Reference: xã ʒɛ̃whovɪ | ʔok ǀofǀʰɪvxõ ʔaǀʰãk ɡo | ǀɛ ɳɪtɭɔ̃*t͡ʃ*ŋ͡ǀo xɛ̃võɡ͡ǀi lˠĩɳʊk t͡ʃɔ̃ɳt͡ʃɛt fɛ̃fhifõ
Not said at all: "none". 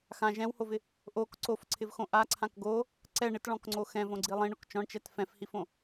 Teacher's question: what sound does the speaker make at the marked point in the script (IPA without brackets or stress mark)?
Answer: k